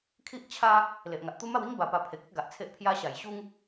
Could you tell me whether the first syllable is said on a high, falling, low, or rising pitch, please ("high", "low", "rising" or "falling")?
high